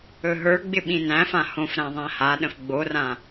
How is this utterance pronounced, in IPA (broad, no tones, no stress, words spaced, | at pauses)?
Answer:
ɵɦə˞ɡ͡bɪ ɓĩnæ̃fã hõfɾæ̃ ðˤæ̃haɗə̃f ɡ͡borã